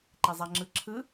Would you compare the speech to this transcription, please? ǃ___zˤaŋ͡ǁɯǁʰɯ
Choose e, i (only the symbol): e